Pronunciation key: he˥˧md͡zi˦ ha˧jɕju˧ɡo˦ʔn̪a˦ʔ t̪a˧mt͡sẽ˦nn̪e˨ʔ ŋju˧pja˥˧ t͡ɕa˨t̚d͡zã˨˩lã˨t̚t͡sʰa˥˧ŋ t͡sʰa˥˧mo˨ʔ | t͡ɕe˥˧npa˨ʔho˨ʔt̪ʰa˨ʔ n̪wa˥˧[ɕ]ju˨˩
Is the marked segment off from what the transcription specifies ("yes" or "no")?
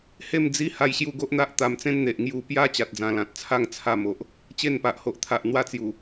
yes